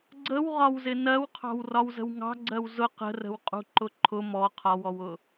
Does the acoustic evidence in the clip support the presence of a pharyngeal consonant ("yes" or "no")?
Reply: no